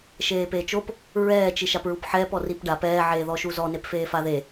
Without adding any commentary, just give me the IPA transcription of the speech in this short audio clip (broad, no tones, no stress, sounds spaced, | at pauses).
ʃ eː p eː t͡ʃ o p | ɹ ɛː t͡ʃ i ʃ a p ɹ u p ħ ɛː p ɔ r i p ɖ a p ɛː ʕ eː ð ɔ ʃ u z ɔ n e p f eː f a ð e